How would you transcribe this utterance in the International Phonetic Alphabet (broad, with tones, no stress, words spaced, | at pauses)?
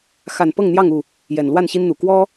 xa˨˩n pɤ˥˨ŋn̪jɑ˥˨ŋu˥˨ | jɛ˨˩nlwa˥˨nɕi˦nn̪u˨˩ kwɔ˦